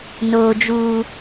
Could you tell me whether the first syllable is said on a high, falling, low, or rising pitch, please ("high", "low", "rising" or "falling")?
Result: high